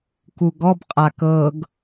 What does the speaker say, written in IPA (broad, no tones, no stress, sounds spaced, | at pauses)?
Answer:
k u ɡ ɔ b qʼ a k ɤ ɡ